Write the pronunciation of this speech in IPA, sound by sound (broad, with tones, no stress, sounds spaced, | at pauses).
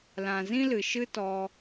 l ã˨ z ĩ˦ l ɨ˨ ʃ ɨ˦ t ɔ˧